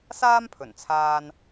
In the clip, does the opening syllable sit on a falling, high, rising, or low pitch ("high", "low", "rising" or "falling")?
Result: high